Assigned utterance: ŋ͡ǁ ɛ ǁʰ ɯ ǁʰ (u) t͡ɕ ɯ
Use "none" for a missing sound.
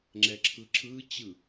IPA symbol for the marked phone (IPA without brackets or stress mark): ɯ